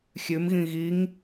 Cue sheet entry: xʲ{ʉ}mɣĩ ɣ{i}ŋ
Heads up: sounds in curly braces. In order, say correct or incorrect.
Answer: correct, correct

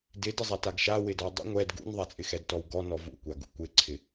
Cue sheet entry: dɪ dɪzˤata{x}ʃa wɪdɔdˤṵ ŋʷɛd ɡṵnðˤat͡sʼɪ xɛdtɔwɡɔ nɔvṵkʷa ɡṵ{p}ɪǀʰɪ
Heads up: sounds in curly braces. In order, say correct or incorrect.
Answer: incorrect: ɡ, incorrect: kʷ

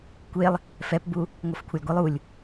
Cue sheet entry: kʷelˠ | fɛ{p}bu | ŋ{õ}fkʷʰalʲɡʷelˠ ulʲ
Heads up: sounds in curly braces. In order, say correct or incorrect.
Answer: correct, incorrect: o

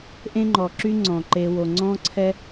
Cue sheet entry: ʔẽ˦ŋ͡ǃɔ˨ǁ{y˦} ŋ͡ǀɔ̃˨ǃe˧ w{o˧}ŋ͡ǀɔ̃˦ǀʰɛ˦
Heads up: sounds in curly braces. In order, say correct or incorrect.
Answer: correct, incorrect: o˨

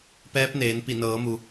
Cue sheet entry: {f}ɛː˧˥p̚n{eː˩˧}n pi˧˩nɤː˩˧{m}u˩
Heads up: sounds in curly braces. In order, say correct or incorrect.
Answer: incorrect: p, correct, correct

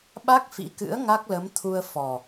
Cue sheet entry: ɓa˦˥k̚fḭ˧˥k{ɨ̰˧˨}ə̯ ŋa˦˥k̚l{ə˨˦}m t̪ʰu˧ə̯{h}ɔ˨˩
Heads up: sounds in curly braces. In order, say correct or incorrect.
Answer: incorrect: ɨ̰˧˥, correct, incorrect: f

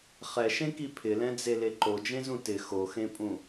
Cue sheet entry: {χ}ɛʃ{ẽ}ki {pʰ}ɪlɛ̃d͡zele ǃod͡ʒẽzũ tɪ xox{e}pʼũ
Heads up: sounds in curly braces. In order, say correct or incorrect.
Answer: correct, correct, correct, incorrect: ẽ

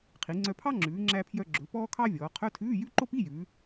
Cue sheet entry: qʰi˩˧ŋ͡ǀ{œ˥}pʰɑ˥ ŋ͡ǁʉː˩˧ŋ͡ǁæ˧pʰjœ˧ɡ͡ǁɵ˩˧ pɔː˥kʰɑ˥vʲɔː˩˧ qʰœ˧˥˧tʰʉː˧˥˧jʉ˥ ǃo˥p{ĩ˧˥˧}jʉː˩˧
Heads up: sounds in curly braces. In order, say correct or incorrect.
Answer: incorrect: œ˧, incorrect: i˧˥˧

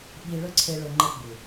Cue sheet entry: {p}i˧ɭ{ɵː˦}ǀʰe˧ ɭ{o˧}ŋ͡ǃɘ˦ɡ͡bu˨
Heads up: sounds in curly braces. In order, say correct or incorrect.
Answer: incorrect: ɓ, incorrect: ɵ˦, incorrect: ɵ˧

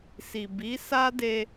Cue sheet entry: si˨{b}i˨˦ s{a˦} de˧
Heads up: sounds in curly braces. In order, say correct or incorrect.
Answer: correct, correct

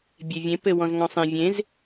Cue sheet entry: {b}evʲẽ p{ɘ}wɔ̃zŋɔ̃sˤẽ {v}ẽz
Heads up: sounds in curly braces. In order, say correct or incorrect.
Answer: incorrect: bʲ, correct, incorrect: vʲ

